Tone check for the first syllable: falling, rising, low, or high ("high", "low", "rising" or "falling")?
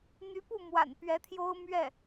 rising